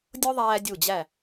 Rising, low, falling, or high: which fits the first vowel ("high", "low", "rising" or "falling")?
high